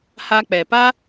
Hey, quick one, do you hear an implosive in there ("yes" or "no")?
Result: no